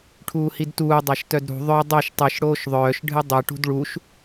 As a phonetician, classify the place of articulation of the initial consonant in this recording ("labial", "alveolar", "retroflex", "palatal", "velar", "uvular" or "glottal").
retroflex